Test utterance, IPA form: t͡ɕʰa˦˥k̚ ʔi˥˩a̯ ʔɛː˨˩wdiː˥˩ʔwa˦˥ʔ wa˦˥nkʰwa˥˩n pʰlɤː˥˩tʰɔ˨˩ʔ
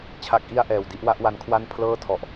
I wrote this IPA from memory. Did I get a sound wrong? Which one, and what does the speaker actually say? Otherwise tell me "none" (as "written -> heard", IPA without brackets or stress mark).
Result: iː˥˩ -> i˥˩